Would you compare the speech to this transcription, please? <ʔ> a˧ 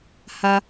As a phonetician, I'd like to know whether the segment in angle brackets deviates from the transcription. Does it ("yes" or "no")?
yes